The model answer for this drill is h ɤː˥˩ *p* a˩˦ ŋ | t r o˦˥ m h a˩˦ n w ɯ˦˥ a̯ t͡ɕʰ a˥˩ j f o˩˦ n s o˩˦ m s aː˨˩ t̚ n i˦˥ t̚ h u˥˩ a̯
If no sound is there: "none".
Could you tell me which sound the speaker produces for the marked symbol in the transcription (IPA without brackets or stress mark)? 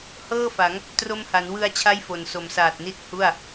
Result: f